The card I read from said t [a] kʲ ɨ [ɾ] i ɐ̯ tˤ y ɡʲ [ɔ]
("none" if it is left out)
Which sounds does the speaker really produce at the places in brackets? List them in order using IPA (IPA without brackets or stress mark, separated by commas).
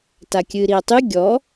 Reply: a, ɾ, ɔ